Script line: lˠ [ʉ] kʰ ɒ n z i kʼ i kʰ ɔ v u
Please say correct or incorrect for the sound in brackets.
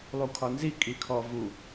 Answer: incorrect